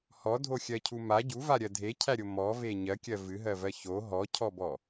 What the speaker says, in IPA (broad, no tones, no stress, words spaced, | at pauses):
hɔdʱoxʲɜcʰu ma ɟuvaɾʲɜ dʱecʰæɾʲo mɔve ɲɜkʲɜ vɨɦɜvɜ ço ɦɔcʰɔbɔ